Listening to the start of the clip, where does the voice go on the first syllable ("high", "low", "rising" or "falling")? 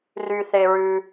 low